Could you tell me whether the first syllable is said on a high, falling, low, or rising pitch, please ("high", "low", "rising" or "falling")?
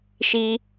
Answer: high